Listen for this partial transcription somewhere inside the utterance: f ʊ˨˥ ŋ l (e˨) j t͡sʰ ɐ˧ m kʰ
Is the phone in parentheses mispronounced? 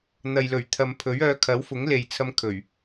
no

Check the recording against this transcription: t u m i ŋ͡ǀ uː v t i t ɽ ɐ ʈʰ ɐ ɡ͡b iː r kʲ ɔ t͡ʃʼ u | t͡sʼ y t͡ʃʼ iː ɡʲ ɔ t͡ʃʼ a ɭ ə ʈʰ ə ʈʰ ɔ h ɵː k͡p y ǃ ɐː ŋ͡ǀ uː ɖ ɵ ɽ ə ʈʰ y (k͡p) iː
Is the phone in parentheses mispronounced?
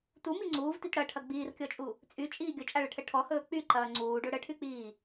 no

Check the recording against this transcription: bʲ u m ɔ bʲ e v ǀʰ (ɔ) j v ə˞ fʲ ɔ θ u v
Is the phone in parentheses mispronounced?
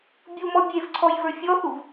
no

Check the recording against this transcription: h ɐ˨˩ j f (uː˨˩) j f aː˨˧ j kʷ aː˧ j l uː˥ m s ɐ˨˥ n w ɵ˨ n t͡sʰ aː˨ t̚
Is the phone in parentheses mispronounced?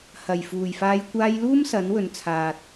no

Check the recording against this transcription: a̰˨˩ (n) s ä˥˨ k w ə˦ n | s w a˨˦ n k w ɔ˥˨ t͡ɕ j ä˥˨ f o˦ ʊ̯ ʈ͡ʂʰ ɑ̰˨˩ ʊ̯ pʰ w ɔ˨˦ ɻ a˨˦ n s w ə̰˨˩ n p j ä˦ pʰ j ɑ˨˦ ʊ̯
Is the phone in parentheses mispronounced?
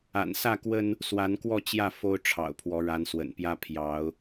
no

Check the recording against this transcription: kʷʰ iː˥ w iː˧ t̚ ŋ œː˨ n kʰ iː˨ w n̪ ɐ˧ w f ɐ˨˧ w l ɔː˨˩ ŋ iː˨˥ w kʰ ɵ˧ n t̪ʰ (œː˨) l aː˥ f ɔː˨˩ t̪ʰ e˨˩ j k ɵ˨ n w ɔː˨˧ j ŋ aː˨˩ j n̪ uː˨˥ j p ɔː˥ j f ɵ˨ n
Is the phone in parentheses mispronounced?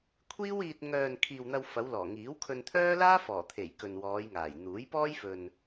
yes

